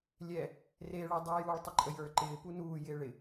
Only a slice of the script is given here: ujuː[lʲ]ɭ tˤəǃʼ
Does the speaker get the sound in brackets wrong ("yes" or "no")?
yes